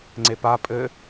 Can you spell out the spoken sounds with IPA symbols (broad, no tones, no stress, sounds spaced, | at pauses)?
ŋ͡ǀ e p a pʼ ɘ